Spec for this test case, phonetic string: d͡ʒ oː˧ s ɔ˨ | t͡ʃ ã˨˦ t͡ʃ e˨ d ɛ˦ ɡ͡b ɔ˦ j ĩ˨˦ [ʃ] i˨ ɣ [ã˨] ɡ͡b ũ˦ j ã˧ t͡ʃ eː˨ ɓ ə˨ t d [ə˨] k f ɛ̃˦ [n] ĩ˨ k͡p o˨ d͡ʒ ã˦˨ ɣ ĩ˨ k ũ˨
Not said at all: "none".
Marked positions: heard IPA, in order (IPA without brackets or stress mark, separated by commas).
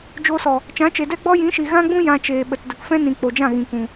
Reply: ʃ, ã˦, ə˨, n